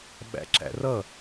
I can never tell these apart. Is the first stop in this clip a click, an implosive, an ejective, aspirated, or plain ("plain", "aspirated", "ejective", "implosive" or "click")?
implosive